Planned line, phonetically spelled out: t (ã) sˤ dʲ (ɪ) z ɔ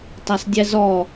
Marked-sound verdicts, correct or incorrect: incorrect: a, incorrect: ɛ

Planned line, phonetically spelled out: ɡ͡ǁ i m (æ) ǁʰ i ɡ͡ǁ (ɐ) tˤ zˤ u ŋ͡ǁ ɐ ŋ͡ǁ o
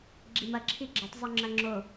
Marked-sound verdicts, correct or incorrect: incorrect: ɐ, correct

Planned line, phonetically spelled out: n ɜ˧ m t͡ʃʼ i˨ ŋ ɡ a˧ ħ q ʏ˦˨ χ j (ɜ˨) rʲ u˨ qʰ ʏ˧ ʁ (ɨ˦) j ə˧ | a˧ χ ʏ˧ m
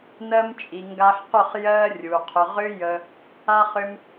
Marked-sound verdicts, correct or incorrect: incorrect: ɜ˧, incorrect: ʏ˦

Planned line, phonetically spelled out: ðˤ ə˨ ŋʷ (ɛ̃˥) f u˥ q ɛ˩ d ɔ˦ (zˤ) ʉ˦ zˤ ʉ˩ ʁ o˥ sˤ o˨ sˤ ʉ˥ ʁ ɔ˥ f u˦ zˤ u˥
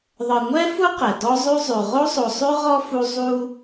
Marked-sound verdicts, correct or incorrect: incorrect: ɛ˥, correct

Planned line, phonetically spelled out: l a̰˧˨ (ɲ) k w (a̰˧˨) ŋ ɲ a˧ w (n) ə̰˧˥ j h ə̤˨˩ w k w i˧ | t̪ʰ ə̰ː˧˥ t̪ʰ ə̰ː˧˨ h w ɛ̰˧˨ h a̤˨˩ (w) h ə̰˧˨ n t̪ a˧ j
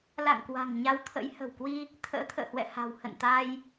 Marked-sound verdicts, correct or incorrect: incorrect: ŋ, incorrect: a̤˨˩, incorrect: t̪ʰ, correct

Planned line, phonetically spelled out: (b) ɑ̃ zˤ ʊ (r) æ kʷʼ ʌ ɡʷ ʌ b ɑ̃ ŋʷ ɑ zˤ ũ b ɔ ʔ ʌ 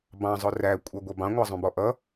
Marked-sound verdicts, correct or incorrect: correct, correct

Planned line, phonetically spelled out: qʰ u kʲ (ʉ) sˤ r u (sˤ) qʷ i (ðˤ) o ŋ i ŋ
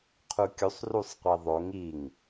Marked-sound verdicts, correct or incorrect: incorrect: u, correct, correct

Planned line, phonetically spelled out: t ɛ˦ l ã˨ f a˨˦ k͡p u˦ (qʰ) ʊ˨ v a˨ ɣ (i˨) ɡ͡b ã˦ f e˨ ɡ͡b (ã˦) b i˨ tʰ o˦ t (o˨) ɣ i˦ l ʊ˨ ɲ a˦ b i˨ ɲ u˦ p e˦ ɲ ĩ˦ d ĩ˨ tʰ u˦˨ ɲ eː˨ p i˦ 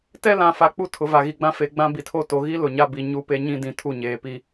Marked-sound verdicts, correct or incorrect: incorrect: tʰ, correct, correct, correct

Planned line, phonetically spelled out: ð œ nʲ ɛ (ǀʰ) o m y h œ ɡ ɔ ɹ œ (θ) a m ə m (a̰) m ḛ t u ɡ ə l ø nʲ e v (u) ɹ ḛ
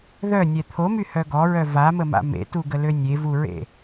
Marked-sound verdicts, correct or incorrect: incorrect: t̪ʰ, incorrect: v, correct, correct

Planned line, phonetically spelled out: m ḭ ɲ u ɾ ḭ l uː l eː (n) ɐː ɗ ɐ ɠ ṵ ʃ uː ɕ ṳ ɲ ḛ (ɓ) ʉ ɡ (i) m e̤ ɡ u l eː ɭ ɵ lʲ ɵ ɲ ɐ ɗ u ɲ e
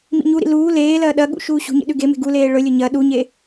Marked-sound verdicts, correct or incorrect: incorrect: l, incorrect: ɗ, incorrect: e

